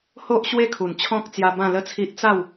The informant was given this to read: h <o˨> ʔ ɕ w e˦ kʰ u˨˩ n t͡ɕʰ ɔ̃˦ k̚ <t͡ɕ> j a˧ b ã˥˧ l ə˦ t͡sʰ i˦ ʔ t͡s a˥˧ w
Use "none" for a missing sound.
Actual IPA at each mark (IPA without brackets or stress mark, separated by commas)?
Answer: o˦, t͡s